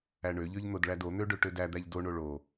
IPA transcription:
æ ɳ ø ʎ ø ʎ n̪ o d ɭ æ d o n̪ ø ɖ ø ʈ ø d æ d̪ æ ʎ d o ɳ o ɭ o

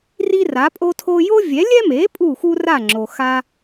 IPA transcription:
r i˥ r a˩˥ pʼ o˥ tʰ o˥ j o˥ vʲ ɛ˩˥ lʲ ɛ˥ m e˩˥ pʼ u˥˩ x u˥ r a˥˩ ŋ͡ǁ o˩ x a˥

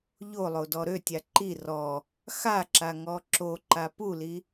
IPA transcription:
ʎ o lˠ o d ɔ ɾ ø tʲ a ǃ i r ɔ | x a ǁ a ŋ ɔ ǁ o ǃ a p u l i

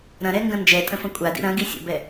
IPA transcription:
ɾ ɐ̃ ɾ ɛ ŋ ɡ ɐ̃ n d͡ʒ ɛ tʼ ə̃ f ɐ̃ kʷʼ a d ḭ ɾ ɐ̃ ɡ i sʲ ə̰ b ɛ

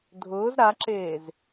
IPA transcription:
dʱ ʊː z ɾ a ǁ eː z

